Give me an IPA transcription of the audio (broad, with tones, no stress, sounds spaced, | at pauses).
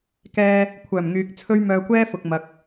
k ɛː˧ | kʷʰ œː˨˩ m ŋ yː˨ k̚ t͡sʰ ɵ˥ ɥ m œː˧ kʷ ɛː˥ f ʊ˨ k̚ m ɐ˨ k̚